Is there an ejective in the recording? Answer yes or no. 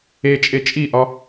yes